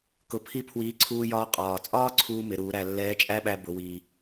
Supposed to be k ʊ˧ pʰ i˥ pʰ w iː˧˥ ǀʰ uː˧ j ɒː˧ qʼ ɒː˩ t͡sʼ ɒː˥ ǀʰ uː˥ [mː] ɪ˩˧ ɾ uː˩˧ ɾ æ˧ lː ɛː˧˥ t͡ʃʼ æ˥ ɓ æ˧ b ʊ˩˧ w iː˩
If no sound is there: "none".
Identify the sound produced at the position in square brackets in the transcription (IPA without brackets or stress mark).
m